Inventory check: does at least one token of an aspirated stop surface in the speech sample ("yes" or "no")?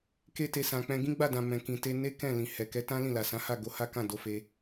no